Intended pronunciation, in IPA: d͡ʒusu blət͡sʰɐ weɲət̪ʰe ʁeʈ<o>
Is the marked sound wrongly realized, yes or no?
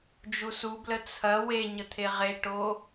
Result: no